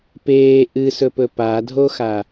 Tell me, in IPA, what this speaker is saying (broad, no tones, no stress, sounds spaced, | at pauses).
p eː ʔ ɨ s ɵ p ɵ p a dʱ o x a